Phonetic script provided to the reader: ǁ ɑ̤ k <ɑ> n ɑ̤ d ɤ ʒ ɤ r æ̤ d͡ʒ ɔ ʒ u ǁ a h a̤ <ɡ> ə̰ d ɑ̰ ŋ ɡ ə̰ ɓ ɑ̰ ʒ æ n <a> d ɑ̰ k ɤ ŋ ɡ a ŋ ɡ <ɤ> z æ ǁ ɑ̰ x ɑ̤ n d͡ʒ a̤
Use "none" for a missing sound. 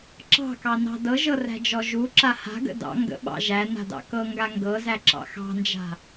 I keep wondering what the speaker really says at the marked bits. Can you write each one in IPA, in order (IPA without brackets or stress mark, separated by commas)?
ɑ, ɡ, a̤, ɤ